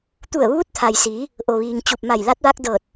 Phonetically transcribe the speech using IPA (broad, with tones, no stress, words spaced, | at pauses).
t̪u˧˩ə̯ʋuː˧˥t̚t̪ʰa˩jsiː˩˧ | ʔo˩ʋiː˩ŋ t͡ɕu˧˩p̚ma˧˩jla˧˥t̚ ʋa˧k̚ dɤː˧˩t̚